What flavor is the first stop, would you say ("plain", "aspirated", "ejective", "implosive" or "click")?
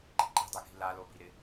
click